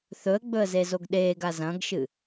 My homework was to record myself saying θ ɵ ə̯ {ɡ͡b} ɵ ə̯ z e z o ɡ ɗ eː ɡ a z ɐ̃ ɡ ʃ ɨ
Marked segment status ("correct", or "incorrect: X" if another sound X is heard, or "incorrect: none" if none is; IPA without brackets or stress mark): correct